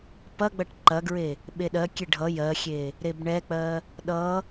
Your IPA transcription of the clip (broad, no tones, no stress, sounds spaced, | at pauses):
p ɐ ɡ͡b ɐ ʈ ǃ ɐ ɡ ɹ e | ɓ e ɗ ɜ kʲ e ɖʱ ʌ j ɜ xʲ e | ɾ e b ɳ ɛ k͡p ɜ | ɗ ʌ